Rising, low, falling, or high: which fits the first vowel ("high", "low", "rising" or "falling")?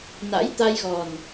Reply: rising